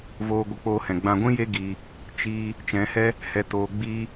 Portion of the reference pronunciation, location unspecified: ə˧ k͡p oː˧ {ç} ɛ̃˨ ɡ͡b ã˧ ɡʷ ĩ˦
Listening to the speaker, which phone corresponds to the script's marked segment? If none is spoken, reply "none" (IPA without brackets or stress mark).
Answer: h